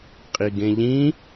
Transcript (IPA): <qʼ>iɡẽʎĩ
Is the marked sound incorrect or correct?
correct